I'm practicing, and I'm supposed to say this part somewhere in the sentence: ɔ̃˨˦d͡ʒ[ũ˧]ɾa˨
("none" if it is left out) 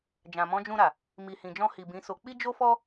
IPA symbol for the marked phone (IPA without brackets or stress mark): ũ˧